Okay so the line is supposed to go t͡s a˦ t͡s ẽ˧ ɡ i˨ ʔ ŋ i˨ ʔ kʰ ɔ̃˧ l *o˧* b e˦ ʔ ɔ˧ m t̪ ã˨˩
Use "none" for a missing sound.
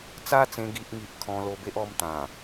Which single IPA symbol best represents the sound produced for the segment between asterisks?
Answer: o˧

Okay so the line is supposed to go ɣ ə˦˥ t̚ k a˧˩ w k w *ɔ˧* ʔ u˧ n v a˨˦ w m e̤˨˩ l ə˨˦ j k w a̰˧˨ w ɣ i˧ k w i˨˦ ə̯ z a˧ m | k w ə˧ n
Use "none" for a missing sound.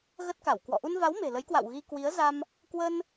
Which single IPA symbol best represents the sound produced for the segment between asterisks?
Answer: ɔ̰˧˨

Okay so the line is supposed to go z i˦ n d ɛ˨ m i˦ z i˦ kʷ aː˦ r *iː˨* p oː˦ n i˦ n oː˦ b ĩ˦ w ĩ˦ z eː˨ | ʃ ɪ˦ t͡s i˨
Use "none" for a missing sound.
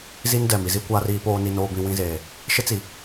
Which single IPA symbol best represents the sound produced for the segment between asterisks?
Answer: iː˨˦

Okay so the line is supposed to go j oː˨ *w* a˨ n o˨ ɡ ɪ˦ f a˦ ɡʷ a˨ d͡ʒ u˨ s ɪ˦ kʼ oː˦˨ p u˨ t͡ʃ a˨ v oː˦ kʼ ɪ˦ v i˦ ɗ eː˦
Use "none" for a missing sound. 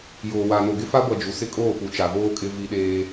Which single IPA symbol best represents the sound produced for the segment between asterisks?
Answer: w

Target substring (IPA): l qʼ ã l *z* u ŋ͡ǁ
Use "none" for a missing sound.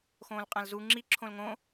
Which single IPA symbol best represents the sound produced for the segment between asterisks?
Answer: z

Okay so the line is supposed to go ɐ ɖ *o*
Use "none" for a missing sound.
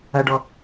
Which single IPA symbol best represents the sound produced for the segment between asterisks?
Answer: ɔ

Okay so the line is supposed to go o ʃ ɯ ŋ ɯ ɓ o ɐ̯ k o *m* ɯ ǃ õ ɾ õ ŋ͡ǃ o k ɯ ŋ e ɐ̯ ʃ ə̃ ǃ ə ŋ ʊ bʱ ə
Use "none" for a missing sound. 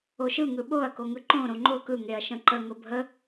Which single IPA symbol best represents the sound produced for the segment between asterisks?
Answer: ŋ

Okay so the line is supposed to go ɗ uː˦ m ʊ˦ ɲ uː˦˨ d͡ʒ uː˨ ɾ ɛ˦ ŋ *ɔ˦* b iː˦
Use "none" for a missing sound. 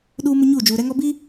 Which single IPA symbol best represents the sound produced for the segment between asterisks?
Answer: ɔ˦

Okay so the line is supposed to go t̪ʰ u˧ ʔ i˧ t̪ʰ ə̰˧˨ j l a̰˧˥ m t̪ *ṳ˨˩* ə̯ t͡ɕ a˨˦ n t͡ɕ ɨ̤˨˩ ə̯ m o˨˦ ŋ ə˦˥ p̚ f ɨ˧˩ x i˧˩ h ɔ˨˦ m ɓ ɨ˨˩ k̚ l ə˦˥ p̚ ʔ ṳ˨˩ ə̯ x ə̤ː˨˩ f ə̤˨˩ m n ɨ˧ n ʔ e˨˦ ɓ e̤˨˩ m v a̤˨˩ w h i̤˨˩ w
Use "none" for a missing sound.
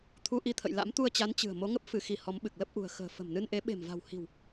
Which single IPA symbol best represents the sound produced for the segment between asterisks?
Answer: u˧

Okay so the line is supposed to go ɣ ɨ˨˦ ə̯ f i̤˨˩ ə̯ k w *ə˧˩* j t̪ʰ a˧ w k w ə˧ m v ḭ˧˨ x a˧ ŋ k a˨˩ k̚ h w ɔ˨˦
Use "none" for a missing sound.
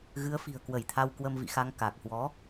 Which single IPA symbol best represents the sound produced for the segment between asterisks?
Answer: ə˧˩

